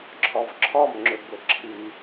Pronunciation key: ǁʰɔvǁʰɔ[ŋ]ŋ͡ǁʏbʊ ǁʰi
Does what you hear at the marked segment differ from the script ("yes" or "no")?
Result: yes